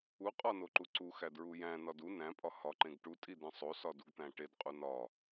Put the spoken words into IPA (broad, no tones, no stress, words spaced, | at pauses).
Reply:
u qʼɒnoǃu ǀuxædɹu jæ̃nɒd u næ̃pʼɒ hɒǃẽɡ ʈutʼidẽ sˤosɒduɡt̪æ̃ ʈedqʼu nɒ